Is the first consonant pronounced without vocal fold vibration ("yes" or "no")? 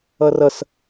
no